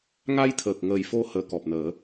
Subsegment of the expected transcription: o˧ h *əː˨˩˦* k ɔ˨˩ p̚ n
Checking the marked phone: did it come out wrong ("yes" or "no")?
yes